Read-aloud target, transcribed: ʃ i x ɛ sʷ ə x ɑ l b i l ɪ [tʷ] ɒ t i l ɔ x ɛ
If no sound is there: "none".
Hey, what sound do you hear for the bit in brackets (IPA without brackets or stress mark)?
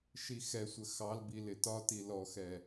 t